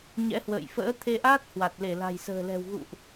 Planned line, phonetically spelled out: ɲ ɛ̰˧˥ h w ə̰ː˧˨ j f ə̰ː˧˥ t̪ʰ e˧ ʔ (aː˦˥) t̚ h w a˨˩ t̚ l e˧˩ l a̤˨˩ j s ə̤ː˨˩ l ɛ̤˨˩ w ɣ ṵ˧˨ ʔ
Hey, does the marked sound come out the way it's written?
yes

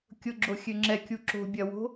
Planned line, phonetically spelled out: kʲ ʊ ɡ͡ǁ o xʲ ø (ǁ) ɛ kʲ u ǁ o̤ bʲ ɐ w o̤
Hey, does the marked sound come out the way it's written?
no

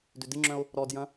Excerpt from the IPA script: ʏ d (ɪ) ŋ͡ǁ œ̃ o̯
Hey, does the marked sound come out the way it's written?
yes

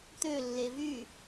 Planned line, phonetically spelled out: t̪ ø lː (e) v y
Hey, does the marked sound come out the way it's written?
yes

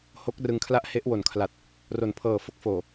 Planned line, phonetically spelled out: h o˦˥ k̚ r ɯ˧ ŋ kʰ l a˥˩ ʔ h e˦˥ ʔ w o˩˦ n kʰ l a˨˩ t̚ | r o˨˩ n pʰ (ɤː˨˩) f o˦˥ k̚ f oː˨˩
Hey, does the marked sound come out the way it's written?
yes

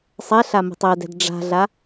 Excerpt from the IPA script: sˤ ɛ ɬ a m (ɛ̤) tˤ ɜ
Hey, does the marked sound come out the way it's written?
no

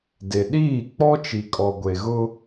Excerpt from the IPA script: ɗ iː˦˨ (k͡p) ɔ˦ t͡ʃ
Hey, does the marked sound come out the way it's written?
yes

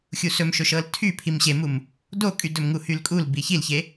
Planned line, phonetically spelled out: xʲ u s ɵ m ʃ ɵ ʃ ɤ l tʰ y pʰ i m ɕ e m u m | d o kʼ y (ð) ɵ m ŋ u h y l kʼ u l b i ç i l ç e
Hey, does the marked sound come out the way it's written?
no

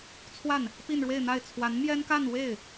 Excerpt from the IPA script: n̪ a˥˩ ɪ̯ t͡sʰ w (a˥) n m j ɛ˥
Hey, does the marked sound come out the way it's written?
no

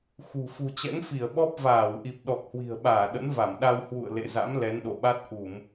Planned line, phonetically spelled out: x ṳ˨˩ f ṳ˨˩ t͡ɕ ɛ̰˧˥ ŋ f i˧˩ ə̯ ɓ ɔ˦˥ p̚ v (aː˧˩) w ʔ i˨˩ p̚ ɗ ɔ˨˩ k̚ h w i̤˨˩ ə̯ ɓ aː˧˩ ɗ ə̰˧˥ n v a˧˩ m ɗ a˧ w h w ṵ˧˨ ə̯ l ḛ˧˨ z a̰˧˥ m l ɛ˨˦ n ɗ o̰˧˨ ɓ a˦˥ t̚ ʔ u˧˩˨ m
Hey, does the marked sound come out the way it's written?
yes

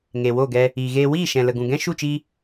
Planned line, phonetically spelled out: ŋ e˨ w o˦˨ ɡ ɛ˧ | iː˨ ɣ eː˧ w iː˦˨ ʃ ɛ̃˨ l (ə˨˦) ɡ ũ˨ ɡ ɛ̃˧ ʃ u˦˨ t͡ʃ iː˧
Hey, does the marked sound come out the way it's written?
no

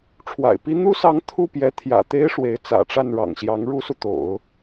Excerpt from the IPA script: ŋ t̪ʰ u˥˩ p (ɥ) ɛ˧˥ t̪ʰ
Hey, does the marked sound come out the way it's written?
no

